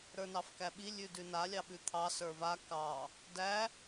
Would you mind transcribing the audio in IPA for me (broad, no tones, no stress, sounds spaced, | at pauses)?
ɾ ə˞ n ɑ f k æ ɓ i lʲ ʉ d ʉ n a lʲ ɑ ɓ ʉ t̪ʰ ɑ s ə˞ v a k ɑ | d æ